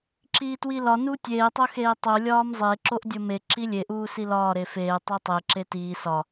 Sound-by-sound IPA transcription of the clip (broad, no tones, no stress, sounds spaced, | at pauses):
ǁ iː t w i l ɒ n u tʲ eː tˤ o x eː tˤ o lʲ ɒː m zˤ e ǁ o ʔ dʲ o m e ǁ i lʲ e ʔ uː s i l ɒː ɾ e f eː tˤ e tˤ e ǁ e t iː s ɒ